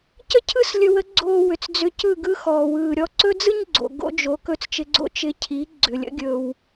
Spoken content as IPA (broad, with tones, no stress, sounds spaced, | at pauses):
c ə˥ cʰ ɯ˥ s lʲ ɵ˧ w ə˥ ɡ͡ǀ oː˧ w ʏ˩ t͡s d͡z ʏ˧ c ɯ˥˩ ɡ ɯ˥ x ɔː˩ w ɯː˩ ɾʲ ɔ˧ ǀ ɵ˥ d͡z ɯ˥ ɲ ɡ͡ǀ o̰˩ ɡ o̰˥ d͡ʒ o˩˥ k ɵ˧ t͡s t͡ʃ ɪ˧ ɡ͡ǀ o̰˥ t͡ʃ ɪ˧ cʰ i˩˥ ɡ͡ǀ ʏ˩ lʲ ə̰˩˥ ɡʲ ɵ˩ w